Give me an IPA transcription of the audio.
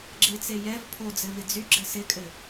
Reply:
ɡ͡ǁ ɪ t͡s e j ɛ v pʰ o d͡z ɘ v ɪ d͡z y ɡ͡ǁ ɘ s ɪ kʼ ɘ

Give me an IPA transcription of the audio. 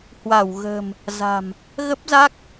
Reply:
h w a˧˩ w ɣ ə̤˨˩ m | z a̤˨˩ m | ɣ ə˦˥ p̚ z a˦˥ k̚

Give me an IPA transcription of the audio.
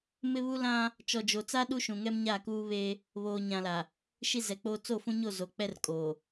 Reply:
m ɪ˦ β u˦ l ã˦ | t͡ʃ ɔ˨ d͡ʒ o˨ t͡s a˦ ɗ u˦ ʃ ũ˨ ŋ ɛ˦ m ɲ a˦˨ k uː˦ β eː˦ | β oː˨ ɲ ã˨ l a˨ | ʃ i˦ z ɛ˨ k͡p oː˦ t͡s o˦˨ f ũ˦ ɲ o˦˨ z o˨ k͡p ɛ˦ r kʼ oː˨

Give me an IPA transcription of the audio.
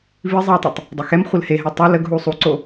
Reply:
v i zˤ i w tˤ ɛ tˤ | dˤ e x ɛ m χʷ ə l h e ɦ ɛ tˤ ə l ə ɡ ɦ u sˤ u ǀ o

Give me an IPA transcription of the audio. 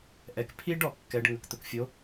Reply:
ʔ ɛ˩ k pʰ i˥ ɖ ɔ˧ kː ɛ˩˥ ɖ ŋ ə˩ k t̪ ʊ˩ k fʲ o˩˥

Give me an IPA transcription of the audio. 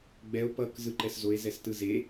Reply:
ɡ͡b ɛ o̯ p ʌ k z ɯ ǃ ɛ s z o e̯ z ɛ s t ɯ z e

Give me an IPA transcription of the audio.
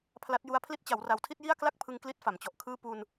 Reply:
pʰ l a˦˥ t̚ j u˦˥ a̯ pʰ l i˦˥ t̚ t͡ɕ a˩˦ w r a˨˩ w tʰ i˥˩ t̚ j i˥˩ a̯ k l a˥˩ k̚ pʰ ɯ˧ ŋ k l i˦˥ t̚ f a˩˦ m t͡ɕ ɔ˨˩ ʔ kʰ ɯː˥˩ p u˧ n

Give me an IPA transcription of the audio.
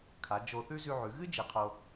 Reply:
kʰ a˩˧ d͡ʒ o˧ θ ʉ˥ z ʉ˧ ʕ ʉ˩˧ ɣ ɨ˥ d͡ʒ i˩˧ qʰ o˧

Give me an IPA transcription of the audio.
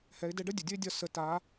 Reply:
h ɛ˩˧ ɪ̯ d ɛ˧ ɖ ə˥ dʲ ə˩ dʲ ə˥ ɪ̯ dʲ ɒ˧ s ə˩˧ t a˩˧

